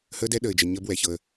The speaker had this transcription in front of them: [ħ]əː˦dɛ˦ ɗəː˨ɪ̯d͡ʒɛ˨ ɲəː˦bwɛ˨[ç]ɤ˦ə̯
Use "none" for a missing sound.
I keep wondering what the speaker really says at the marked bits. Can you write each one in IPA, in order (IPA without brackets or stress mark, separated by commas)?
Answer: h, ç